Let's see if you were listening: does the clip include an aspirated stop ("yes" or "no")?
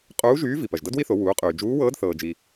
no